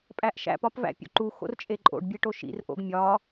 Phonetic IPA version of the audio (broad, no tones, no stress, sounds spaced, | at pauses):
pʼ æ ʔ ʃ æ̰ p ɒ p v æ̰ pʲ o̰ ǃ u x o̰ r t͡ʃʼ e ǃʼ o̰ ɖ bʲ e ʈ o ʃ ḭ r ʔ o̰ ɡ mʲ ɒ